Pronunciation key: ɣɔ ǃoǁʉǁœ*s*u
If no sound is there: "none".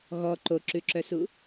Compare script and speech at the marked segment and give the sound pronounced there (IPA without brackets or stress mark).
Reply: s